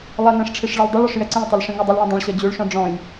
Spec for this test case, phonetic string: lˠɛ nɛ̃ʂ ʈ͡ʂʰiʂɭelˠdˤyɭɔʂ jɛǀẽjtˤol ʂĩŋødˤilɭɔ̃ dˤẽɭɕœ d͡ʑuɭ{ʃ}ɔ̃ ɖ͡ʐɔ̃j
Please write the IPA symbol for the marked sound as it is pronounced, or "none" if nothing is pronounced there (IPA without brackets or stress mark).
ʃ